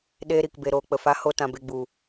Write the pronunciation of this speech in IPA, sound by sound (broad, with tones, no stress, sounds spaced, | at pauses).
ɗ eː˧ ɾ i˨ k b e˨ ɾ oː˨ k͡p ə˨ f a˨˦ h o˨ t ã˨ b e˨ ɡ͡b u˨